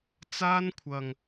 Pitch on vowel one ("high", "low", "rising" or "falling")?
high